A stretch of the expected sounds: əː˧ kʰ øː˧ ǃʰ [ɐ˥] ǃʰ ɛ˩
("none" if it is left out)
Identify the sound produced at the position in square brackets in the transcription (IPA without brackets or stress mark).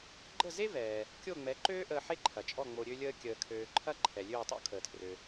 ɐ˥